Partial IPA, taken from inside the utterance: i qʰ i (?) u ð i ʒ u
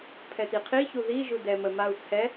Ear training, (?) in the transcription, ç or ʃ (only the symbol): ç